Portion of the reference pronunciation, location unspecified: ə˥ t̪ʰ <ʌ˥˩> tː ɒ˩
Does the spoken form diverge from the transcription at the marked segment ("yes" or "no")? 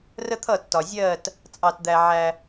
no